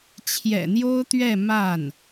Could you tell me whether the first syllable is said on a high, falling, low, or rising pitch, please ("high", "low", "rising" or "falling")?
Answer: low